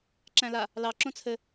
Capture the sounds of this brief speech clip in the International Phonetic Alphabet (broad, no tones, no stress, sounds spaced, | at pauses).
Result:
ǁ æ̃ l a | l ɑ ǁ õ t͡sʰ ɘ